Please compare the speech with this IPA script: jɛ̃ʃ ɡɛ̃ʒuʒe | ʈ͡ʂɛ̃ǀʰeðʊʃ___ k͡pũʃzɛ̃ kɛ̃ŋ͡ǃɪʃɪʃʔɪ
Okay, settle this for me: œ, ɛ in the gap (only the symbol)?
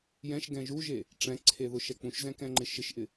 ɛ